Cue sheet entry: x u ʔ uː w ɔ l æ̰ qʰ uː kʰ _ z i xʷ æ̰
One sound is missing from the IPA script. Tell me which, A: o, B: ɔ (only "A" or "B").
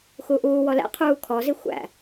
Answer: B